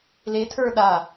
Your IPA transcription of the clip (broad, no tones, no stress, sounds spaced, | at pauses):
l e tʰ ə˞ ɗ a